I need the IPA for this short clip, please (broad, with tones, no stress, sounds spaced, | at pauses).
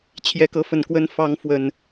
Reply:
t͡ɕʰ j ɛ˨˦ k ɤ˨˦ f ə˨˩ n k w ə˦ n f ɑ˨˦ ŋ f w ə˨˩ n